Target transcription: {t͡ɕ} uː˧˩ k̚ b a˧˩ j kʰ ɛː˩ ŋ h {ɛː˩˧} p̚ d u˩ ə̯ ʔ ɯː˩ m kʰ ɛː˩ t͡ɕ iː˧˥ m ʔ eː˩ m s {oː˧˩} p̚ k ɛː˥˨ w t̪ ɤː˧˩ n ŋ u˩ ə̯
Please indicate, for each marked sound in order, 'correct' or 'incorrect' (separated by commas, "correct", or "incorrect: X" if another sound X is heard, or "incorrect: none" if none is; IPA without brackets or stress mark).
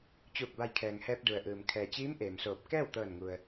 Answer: correct, incorrect: ɛː˧, correct